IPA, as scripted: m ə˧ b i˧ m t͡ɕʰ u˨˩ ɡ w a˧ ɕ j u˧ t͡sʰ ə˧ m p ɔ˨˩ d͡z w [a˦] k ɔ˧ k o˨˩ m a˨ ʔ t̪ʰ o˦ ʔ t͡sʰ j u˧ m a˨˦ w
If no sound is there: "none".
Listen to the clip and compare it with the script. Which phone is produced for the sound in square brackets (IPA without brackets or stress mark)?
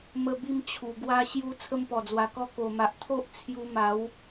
a˨˩